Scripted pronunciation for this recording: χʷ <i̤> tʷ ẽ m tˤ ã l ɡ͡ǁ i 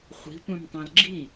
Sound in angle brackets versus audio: correct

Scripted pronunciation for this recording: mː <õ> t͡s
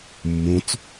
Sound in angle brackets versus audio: correct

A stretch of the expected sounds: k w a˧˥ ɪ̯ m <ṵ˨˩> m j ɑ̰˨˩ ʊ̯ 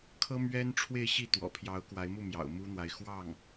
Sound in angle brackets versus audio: incorrect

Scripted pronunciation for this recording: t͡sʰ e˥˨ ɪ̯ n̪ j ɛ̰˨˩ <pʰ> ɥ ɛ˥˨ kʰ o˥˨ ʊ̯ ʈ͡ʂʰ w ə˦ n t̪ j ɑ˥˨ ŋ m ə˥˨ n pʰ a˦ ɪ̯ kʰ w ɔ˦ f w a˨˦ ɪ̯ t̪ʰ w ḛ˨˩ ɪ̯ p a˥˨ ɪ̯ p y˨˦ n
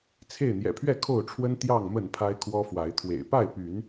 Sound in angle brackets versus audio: correct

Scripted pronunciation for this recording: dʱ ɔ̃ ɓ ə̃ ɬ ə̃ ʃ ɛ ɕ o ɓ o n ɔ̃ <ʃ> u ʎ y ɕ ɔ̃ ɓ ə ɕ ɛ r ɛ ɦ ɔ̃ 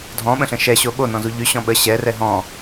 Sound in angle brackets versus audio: incorrect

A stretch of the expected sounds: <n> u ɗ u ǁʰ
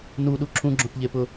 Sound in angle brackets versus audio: correct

